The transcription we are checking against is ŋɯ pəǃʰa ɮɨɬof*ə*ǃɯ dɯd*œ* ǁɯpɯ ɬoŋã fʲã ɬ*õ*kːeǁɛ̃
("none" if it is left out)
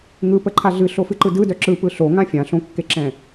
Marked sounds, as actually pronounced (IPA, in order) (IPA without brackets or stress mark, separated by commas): ɨ, œ, õ